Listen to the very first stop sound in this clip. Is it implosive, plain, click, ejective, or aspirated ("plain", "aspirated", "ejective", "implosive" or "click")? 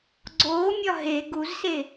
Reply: click